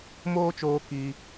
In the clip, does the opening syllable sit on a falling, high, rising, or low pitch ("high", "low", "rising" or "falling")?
high